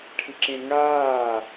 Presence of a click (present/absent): present